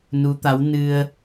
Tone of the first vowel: rising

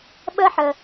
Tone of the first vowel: high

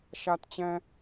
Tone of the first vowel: high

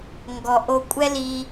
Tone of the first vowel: low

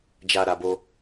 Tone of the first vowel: low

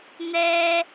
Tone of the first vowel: high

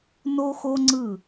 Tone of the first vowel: high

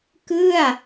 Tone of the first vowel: falling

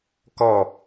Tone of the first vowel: falling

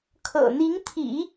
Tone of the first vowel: low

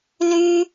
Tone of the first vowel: high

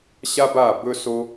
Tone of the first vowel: high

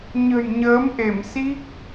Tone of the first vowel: low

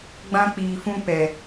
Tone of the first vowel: high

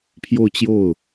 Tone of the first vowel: falling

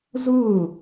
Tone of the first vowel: falling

